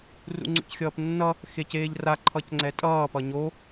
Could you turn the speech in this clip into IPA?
rṵŋ͡ǀṵcxʲʌːpnːʌ | xeceːʎra ǃʰʌcŋ͡ǀɛtʼʌː pʌɲo

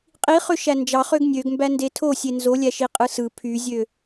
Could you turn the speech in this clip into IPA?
qʼiχø ʃænd͡ʒɑχøɡ nʲøɡmbæ ndetʰo sʲenzolʲæʃi qʼɯsɯ pʰyzʲø

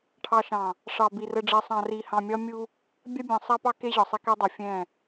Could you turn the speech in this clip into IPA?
ʈʰɑ˨ʃɑ̃˨ | ʂɑ˨bi˨ rə˨ɖ͡ʐɛ˨sˤɑ̃˨ ri˨hɑ̃˨mʲɒ˦ mʲu˦ | bʲa˦bʲɑ̃˨ sˤa˦pɑ˦ke˦ʑɒ˨ sˤɛ˦kɛ˦dˤɛ˨ fʲɛ̃˦˨

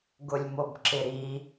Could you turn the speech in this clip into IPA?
ɡʊlʲmobǁɪɾi

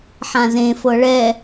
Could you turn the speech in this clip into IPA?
ħãzẽ fɤɭɛ

